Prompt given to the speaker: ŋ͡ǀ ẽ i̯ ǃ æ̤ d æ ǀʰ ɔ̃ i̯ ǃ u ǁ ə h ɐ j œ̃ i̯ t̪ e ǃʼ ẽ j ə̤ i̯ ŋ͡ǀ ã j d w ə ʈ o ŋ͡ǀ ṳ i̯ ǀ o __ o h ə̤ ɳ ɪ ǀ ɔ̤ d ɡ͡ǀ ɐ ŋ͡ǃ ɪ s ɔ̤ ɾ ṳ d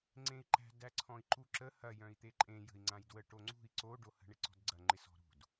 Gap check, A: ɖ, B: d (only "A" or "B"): A